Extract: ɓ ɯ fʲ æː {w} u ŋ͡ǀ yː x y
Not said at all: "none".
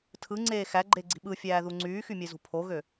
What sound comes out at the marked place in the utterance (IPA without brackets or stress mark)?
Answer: ð